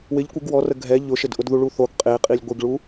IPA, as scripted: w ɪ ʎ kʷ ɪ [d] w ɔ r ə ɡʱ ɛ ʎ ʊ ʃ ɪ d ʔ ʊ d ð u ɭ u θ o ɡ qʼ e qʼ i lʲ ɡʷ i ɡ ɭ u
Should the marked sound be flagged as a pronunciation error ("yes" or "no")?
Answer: yes